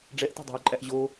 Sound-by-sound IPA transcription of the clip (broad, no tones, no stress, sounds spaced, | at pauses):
ɖ͡ʐ ɛ ʔ t ɛ̤ dˤ æ̤ ʊ̯ ǃʼ æ ʔ ʑ o